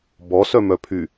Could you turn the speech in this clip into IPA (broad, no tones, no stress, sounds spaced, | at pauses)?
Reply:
b ɔ s œ m œ pʰ y